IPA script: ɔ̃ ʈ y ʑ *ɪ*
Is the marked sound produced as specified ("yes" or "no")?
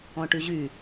no